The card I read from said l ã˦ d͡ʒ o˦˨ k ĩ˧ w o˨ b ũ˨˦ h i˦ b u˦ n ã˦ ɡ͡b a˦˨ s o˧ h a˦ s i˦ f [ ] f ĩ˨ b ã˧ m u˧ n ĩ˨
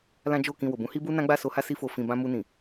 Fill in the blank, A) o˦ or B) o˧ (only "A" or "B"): B